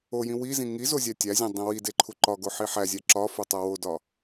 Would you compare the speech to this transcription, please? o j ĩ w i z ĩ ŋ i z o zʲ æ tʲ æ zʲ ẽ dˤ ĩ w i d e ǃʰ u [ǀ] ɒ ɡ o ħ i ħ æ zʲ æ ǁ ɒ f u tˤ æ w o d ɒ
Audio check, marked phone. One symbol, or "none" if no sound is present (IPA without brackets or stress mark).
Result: ǃ